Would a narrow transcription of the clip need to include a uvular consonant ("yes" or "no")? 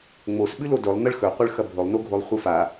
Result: yes